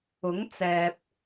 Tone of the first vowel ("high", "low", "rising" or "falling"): rising